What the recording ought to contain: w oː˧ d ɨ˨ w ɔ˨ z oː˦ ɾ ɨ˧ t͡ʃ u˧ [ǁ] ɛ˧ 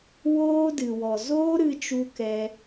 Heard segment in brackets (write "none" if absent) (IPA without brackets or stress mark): k